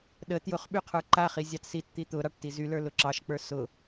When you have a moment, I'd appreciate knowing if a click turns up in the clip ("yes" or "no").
yes